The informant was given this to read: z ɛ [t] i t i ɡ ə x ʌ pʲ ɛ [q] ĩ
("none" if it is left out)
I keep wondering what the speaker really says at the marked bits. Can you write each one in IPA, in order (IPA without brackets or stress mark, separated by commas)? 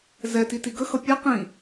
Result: t, q